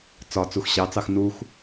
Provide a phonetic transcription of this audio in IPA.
t͡s ɒ t͡s u x ɕ ɑ t͡s ɑ x n u x

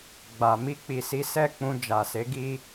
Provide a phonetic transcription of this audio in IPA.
ɡ͡b a˨ m i˧ k͡p i˨ s i˨˦ s ɛ˦˨ k͡p ũ˧ d͡ʒ a˨ s e˨˦ ɡ i˦

